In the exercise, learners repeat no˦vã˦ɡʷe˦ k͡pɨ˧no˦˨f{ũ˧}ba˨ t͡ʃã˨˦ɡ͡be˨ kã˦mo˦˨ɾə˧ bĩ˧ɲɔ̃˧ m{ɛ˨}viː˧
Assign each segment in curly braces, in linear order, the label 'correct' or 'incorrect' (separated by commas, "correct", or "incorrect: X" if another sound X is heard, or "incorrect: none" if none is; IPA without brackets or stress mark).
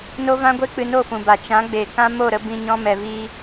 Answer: incorrect: ũ˨, correct